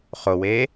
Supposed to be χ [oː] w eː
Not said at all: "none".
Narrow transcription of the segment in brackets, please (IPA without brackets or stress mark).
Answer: o